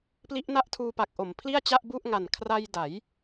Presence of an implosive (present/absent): absent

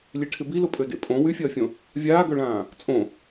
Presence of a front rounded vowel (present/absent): present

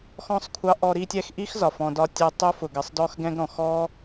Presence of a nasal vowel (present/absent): present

